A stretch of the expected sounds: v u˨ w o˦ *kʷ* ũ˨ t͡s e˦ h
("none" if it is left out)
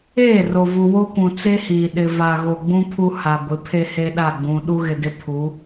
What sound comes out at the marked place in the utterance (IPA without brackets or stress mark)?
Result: kʷ